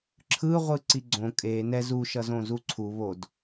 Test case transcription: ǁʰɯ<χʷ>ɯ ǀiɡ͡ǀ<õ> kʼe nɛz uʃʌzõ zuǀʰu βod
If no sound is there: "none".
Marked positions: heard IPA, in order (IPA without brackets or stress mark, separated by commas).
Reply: ʁʷ, õ